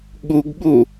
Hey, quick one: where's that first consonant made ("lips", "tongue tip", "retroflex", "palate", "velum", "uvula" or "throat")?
velum